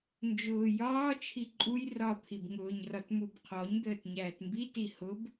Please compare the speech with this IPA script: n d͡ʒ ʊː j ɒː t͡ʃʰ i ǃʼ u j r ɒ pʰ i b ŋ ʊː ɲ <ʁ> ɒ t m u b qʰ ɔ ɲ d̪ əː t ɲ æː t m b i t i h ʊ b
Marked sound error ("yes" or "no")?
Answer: yes